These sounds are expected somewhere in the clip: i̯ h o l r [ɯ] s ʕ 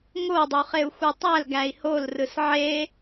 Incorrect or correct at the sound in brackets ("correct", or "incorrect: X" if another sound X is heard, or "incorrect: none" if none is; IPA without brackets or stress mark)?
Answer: correct